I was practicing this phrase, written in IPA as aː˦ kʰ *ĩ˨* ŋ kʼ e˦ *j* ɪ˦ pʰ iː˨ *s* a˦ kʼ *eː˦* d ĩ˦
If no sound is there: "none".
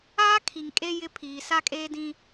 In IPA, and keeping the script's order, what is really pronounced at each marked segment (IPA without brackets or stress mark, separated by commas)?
i˨, j, s, eː˦